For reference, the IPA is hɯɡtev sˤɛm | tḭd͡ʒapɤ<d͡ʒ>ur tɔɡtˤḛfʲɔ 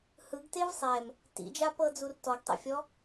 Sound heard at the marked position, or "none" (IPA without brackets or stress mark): d͡z